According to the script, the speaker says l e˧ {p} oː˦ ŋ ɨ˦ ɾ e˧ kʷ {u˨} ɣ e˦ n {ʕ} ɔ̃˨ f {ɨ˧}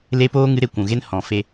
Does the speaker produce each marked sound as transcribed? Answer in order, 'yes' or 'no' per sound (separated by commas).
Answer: yes, no, no, no